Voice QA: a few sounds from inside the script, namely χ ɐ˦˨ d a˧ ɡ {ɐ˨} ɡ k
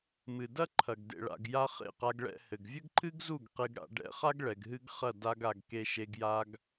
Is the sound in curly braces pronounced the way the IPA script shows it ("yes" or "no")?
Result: no